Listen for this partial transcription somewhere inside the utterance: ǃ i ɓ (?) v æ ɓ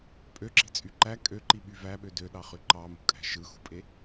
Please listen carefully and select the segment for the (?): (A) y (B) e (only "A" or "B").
A